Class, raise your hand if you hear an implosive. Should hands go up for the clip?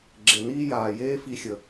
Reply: no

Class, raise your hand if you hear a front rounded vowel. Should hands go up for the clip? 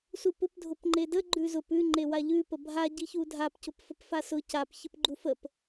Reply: no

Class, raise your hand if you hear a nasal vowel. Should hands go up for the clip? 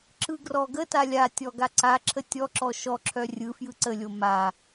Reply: no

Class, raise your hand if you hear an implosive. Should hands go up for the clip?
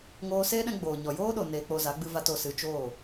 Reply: yes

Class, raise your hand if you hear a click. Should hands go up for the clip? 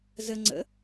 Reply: yes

